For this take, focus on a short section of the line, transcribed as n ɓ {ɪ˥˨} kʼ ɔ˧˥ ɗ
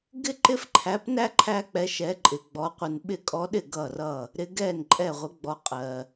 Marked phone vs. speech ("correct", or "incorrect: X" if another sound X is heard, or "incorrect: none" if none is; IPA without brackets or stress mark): correct